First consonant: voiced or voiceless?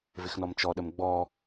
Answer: voiced